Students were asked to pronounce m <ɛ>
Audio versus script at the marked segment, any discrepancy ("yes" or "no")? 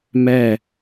no